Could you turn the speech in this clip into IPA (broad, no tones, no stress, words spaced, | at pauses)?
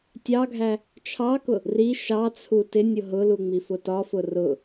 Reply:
tʲɑɡʱæ | t͡ʃʰɑkʊ | ri ʃɑt͡sʰu tɪ nʲʊɦʊlu ŋ͡mifʊtɒfʊ rʊ